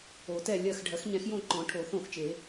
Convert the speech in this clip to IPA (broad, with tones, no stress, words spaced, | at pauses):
o˨˩˦tɛ˦˨lʲɜ˦˨x ɖʱɜ˨˩˦xɲɛ̃˨˩˦xjõ˦˨ ǃɔ̃˨˩˦ʈʰo˨˩˦θõ˦˨xt͡ʃe˨˩˦